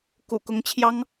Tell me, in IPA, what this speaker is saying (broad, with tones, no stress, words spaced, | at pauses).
kṵ˨˩kʊ˧˥ŋt͡ɕʰjɑ˥ŋ